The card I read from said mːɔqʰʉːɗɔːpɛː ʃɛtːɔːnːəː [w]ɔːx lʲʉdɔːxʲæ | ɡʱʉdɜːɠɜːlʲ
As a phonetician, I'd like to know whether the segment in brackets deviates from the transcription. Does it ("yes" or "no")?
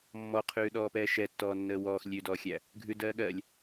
no